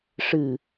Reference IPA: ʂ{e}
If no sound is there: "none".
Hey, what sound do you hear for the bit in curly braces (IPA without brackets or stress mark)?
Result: ɨ